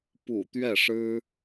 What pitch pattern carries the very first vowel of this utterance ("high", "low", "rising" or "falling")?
low